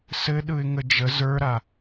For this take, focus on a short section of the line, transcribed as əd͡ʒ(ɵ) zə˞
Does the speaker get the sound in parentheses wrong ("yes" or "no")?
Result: yes